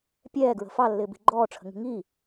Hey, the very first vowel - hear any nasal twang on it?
no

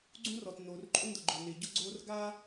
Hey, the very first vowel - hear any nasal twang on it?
yes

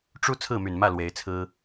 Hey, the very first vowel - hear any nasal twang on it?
no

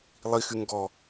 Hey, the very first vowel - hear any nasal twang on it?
no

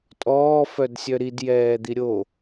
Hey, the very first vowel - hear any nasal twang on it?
no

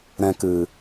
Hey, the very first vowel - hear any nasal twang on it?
yes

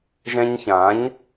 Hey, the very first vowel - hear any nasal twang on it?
yes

